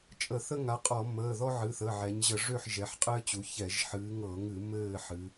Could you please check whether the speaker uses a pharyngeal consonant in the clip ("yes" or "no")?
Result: yes